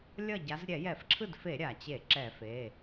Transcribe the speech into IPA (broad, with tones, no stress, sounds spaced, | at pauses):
lʲ ʌ˥˩ ɟ a˨˦ z ɾʲ ɛ˧˩˧ j ɛ˧˩˧ f ǁʰ ɯ˥˩ d f e˧˩˧ ɾʲ a˩ t͡ɕ e˧˩˧ ǁ ɛ˧˩˧ f e˩˧˩